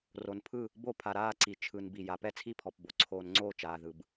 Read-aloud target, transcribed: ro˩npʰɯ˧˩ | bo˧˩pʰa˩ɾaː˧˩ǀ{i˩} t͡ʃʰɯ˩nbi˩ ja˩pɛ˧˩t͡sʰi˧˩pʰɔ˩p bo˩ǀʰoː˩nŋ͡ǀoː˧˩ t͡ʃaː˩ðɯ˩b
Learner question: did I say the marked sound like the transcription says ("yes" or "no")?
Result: yes